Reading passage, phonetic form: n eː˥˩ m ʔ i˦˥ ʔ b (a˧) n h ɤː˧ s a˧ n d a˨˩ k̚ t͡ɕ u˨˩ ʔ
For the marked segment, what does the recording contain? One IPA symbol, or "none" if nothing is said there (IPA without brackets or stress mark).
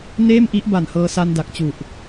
a˨˩